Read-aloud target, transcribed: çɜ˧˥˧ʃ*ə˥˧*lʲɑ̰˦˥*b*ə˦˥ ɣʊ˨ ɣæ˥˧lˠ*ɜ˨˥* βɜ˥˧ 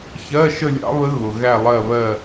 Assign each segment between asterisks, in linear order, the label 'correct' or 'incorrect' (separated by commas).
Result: correct, incorrect, incorrect